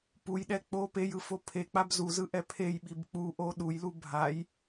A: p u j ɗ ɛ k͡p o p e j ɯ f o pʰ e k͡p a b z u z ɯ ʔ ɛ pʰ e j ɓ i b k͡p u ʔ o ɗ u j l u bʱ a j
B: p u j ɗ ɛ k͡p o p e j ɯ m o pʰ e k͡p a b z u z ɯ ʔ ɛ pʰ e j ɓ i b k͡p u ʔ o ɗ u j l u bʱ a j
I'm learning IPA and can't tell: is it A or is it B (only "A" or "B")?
A